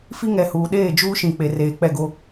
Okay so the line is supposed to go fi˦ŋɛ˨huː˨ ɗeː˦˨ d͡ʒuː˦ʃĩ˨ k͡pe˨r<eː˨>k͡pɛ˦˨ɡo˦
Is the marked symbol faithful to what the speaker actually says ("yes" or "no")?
yes